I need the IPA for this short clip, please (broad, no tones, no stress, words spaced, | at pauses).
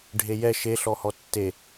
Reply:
ɖʱejɛ ʃeɬɔhɔ tːe